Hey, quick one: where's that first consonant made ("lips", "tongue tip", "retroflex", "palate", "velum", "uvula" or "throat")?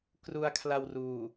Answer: velum